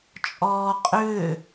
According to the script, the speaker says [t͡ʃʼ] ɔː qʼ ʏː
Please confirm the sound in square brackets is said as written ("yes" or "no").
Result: yes